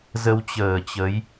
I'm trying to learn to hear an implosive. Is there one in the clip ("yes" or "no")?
no